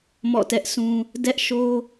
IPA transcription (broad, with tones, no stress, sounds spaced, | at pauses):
m ɔ̰˦˨ t ɛ˦ ʔ s ũ˦ | d ɛ˦ ʔ ʃ o˦